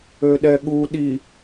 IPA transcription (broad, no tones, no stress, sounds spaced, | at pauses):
ø ɗ ɛ ɠ u ɗ i